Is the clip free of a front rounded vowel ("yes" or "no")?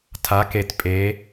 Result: yes